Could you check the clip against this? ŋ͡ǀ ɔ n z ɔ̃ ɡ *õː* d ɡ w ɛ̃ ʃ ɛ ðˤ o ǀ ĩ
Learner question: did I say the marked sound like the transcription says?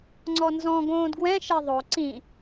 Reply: yes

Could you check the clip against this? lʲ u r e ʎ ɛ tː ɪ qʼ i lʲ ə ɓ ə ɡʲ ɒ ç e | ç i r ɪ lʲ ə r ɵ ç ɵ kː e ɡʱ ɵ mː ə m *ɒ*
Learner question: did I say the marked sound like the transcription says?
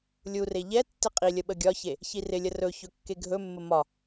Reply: yes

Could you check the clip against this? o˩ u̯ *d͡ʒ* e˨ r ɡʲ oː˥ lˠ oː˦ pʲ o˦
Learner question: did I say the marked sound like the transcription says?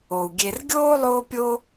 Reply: no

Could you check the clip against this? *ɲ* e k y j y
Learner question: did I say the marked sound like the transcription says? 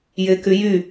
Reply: no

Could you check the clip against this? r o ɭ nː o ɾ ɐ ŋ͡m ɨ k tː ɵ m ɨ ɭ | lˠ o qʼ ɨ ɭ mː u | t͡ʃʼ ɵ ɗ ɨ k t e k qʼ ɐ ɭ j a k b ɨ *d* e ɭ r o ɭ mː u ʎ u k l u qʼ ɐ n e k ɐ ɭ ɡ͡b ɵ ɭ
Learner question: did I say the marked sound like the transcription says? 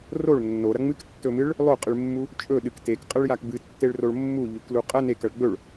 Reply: no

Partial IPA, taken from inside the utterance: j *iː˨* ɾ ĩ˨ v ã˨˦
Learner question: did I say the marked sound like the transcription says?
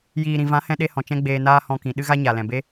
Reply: yes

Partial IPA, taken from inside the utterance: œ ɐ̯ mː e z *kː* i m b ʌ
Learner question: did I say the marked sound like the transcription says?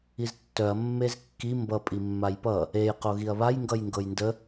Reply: yes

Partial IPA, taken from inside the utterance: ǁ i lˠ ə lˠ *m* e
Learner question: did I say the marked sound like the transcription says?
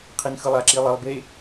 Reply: no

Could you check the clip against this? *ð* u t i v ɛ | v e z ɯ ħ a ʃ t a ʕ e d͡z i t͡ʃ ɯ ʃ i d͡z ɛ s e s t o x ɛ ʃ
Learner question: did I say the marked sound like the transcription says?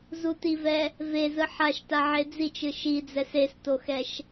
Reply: no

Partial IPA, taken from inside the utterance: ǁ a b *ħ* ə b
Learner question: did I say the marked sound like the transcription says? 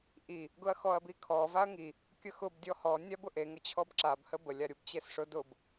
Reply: no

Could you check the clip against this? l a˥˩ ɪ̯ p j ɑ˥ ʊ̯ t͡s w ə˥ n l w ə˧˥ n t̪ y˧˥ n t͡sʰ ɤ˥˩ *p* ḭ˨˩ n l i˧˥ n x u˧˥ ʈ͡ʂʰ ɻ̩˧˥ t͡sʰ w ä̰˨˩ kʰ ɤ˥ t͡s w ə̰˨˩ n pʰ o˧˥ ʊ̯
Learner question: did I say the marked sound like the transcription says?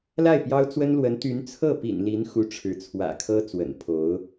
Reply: yes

